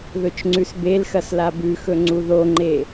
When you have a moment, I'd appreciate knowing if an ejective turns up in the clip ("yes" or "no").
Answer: no